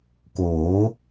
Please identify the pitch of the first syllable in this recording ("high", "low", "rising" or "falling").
rising